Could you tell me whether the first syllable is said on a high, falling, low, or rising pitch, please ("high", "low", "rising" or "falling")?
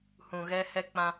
low